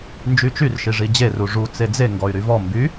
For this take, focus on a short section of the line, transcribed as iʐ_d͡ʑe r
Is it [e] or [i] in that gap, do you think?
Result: i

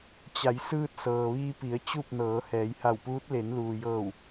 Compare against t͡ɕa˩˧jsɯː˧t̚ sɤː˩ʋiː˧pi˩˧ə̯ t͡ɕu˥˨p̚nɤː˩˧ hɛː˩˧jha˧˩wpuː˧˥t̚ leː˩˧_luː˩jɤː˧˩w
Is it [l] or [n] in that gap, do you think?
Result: n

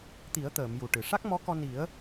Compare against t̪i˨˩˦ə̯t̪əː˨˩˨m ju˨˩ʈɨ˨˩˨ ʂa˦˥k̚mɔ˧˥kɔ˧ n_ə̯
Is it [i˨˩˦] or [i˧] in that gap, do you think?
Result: i˨˩˦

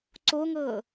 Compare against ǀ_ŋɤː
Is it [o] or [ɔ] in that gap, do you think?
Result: o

